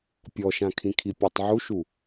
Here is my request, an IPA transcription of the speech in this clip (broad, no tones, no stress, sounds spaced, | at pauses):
pʲ ɔ ʃ ã kʰ ĩ kʰ i pʲ ɔ tˤ ʕ u ʃ u